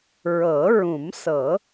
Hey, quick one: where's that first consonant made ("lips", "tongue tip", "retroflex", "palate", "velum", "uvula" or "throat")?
tongue tip